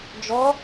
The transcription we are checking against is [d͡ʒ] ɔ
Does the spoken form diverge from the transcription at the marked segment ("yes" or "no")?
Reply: no